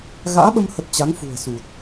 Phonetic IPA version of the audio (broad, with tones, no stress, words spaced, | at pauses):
ɣa̰ː˧˥ɓə˧mhə˨˩t̚ t͡ɕa˨˦ŋfṳ˨˩ə̯su˨˩t̚